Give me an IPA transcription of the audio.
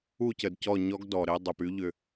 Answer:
u˦˨ c ə˨ d c ɔ˦˨ ɲ ɔ˦ ɡ d ɔ˨ ɾ ɪ˦ dˤ ʏ˨ p y˦ ʎ ʏ˨

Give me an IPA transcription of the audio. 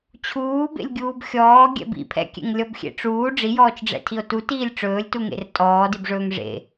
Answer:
t͡ɕʰ uː b ḛ lʲ ɡʲ uː b xʲ ɔː ɡʲ ɛ̰ b ḭ pʰ ɛ̰ kʲ ḛ ŋ lʲ ɔ b xʲ ḛ ʈ͡ʂ uː ɖ͡ʐ i j ɔː t͡ʃ ɖ͡ʐ ɛ̰ tʰ i o̯ t u t iː lʲ ʈ͡ʂ ɵː lʲ t u ŋ ḛ r tʼ ɔː d i b ʐ ɵː ŋ ʐ ḛ

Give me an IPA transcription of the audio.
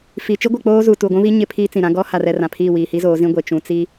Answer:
f iː˨ t͡ʃ i˦ ɡʷ ɪ˨ k͡p oː˦ z u˨ t u˨ ɡʷ ũ˦ β i˦ ɲ ɪ˦ pʰ iː˦ t͡s ĩ˨ ɾ ã˦ ɡ ɔ˦ h a˨ r ɛ˨ r ã˨ pʰ iː˦˨ w iː˨ h i˦ z oː˨˦ z ĩ˦ ɡʷ e˨ t͡ʃ ũ˨ t͡s i˦

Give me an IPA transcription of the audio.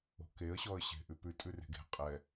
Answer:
o̤ k e ə̯ ɕ ɔ ə̯ ɕ e̤ ʔ ʉ p ʉ tʼ ʉ r e̤ ɡ e̤ qʼ ɛ

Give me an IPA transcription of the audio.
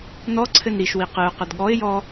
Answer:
n ɔ ǀʰ ɘ n ɾ i ʃ w i q ɨ ʊ̯ q ɘ d ɠ ɔ ɪ̯ j ɔ

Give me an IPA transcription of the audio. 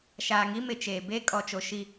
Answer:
ʃ aː˨ ŋ i˦ m ɪ˨ t͡ʃ eː˨ b e˦ kʼ ɔ˨ t͡ʃ o˨ ʃ i˦

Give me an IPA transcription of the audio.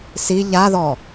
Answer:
s i ʎ a ð ɔ

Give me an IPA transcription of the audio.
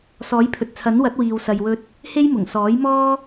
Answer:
s ɔː˨˥ j pʰ ɵ˨ t̚ t͡sʰ ɐ˨˥ n w ɐ˨˥ t̚ w iː˨ w s ɐ˨ j w ɵ˧ t̚ | h e˥ j m ʊ˨˩ ŋ s ɔː˨˥ j m ɔː˥

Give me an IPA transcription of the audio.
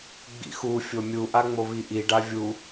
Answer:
ɡ͡b ḭ x u fʲ o mʲ u ʔ a ŋ͡m o β i ʔ i ɖ a vʲ u

